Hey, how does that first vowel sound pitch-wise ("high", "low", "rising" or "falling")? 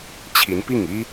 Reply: rising